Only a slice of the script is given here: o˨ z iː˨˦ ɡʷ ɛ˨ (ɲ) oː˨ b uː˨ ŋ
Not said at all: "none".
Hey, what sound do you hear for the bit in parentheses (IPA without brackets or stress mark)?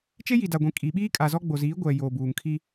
j